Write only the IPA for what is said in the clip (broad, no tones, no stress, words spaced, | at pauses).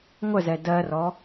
ŋʷəzɛ dɜrɔ